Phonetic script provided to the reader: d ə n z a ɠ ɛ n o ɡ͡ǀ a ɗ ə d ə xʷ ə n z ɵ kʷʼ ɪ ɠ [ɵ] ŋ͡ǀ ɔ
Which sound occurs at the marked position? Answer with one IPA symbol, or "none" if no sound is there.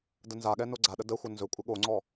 o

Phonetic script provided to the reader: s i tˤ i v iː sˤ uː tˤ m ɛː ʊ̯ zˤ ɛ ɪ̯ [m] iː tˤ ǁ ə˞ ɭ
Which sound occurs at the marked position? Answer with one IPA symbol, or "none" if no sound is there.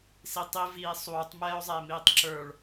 m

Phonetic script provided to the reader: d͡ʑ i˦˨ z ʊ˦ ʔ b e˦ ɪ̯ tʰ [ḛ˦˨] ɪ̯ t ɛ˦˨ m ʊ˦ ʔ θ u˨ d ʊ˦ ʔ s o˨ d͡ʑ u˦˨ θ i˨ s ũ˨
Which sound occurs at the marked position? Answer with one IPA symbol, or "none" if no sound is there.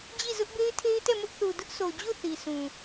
e˦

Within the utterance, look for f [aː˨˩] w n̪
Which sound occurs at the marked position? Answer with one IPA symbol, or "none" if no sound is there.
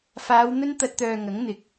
aː˨˧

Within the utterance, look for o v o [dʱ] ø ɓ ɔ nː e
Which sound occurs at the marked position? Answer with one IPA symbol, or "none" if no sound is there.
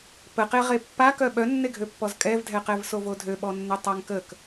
dʱ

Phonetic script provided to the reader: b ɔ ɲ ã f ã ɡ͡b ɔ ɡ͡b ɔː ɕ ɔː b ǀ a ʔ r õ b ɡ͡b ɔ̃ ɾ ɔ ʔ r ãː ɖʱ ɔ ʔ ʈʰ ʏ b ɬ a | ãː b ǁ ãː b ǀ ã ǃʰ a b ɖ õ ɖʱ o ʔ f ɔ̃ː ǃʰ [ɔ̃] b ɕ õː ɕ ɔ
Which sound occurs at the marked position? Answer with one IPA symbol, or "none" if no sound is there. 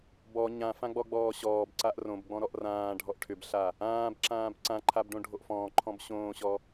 ɔ̃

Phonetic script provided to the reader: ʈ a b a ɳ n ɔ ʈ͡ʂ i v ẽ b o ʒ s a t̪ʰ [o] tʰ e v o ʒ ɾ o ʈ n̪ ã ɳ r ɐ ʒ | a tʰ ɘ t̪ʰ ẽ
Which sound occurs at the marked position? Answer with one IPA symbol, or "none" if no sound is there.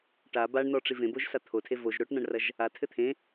o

